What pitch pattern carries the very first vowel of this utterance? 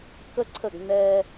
high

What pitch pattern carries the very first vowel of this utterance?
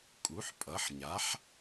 rising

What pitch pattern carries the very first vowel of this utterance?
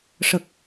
low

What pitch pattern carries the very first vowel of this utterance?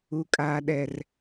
high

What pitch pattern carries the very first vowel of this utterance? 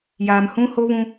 low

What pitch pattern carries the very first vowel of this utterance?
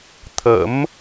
rising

